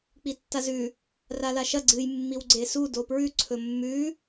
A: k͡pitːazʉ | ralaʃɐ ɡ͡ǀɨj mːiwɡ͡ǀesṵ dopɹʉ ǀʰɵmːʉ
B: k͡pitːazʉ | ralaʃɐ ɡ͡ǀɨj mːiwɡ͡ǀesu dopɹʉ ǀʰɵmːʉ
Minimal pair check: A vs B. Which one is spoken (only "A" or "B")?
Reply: B